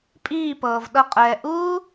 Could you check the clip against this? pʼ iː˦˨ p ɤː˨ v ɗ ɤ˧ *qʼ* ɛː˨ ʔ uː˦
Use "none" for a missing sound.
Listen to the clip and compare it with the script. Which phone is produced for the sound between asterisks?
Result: qʼ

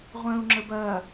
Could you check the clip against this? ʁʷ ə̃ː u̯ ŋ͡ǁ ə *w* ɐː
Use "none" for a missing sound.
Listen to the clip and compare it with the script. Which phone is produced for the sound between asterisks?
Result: b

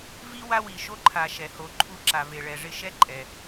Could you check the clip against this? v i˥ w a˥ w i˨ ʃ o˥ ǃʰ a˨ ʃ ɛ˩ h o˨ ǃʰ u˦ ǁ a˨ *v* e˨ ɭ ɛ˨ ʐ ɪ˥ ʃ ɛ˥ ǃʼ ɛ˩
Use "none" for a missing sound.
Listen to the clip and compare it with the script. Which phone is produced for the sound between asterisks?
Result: v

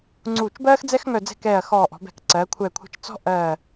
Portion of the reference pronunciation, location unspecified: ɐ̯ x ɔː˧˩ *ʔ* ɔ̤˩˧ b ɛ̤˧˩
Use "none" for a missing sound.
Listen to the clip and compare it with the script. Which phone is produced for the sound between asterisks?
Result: ʔ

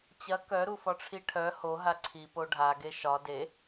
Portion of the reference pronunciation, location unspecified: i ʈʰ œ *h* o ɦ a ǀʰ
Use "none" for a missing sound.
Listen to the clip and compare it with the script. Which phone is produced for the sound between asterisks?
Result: h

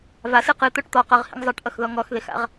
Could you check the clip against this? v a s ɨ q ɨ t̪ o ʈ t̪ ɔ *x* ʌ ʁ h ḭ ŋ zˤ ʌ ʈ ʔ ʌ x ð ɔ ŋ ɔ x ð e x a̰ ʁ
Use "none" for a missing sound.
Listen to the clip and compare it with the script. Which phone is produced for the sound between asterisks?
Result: q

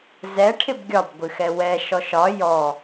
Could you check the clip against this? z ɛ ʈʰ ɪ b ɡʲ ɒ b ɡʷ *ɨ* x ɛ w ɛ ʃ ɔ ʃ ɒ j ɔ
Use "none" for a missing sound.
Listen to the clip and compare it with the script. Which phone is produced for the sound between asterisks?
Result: ɨ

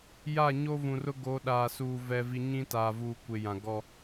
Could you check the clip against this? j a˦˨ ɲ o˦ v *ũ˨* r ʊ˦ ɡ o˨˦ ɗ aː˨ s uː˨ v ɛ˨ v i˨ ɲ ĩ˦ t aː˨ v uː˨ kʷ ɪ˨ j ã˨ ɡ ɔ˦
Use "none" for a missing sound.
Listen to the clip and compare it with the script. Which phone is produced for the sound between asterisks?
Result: ũ˨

